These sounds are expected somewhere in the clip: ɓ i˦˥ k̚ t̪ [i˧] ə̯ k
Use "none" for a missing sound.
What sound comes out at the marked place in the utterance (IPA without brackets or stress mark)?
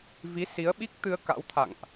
ɨ˧